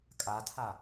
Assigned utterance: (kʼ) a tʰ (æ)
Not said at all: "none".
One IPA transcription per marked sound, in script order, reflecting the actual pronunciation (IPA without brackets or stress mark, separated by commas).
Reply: kʼ, a